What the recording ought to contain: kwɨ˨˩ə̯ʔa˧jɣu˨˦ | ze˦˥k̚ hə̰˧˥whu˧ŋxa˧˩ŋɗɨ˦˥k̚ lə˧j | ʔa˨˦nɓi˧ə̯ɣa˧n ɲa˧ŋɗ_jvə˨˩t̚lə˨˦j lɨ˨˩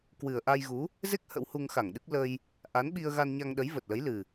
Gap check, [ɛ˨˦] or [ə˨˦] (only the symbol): ə˨˦